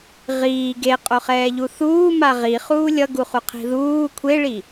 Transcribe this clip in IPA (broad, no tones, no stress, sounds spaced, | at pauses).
ʁ iː ɡ e qʼ o χ ɛː ʎ u θ uː m a ʁ i χ uː lʲ ʌ ɡ u χ u qʰ i̤ ð uː kʷʰ e ɭ i